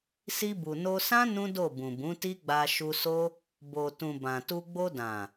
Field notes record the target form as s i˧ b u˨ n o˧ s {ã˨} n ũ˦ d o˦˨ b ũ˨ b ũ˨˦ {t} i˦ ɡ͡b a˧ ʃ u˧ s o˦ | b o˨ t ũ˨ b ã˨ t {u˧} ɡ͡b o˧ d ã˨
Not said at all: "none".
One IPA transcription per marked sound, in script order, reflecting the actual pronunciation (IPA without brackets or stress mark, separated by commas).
ã˦, t, u˧